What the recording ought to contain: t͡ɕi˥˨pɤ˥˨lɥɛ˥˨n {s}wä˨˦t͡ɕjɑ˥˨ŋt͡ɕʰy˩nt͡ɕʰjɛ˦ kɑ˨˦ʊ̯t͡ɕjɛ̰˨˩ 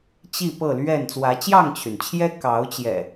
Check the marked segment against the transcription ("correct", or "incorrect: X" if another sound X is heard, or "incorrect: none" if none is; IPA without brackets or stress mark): incorrect: t͡s